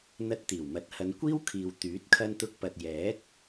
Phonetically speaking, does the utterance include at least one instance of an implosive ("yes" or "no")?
no